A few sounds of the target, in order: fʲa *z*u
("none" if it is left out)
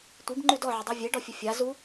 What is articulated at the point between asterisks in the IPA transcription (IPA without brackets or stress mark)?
z